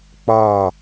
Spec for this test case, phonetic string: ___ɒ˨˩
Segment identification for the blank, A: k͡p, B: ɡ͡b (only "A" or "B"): A